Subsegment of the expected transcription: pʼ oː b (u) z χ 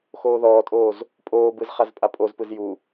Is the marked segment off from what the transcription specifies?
yes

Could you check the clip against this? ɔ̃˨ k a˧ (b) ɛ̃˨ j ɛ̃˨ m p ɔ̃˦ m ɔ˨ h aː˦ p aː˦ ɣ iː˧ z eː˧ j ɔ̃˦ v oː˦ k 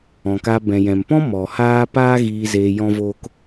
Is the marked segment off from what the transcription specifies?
no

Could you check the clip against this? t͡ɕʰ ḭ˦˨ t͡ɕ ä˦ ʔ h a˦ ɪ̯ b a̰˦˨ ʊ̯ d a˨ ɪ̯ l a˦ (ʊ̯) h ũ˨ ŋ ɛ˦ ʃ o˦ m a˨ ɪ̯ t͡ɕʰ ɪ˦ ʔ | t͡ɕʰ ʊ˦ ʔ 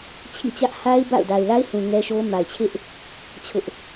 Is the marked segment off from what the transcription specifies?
yes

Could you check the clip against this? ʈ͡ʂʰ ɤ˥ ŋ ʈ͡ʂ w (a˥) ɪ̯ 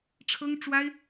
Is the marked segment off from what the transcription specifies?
no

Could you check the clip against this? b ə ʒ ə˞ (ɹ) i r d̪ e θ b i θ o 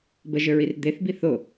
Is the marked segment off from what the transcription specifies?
no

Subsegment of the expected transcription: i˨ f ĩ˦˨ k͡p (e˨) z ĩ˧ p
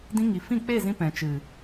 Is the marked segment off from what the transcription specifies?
yes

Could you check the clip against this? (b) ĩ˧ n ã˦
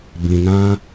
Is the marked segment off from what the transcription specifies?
no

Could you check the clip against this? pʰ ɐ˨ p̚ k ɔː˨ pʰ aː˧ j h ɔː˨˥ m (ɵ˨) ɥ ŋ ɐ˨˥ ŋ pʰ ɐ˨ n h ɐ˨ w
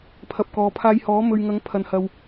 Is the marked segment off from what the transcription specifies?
no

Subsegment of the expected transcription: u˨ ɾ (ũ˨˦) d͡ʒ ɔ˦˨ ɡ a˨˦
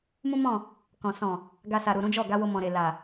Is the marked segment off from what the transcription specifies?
no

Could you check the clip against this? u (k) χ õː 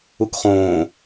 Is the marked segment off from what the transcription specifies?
no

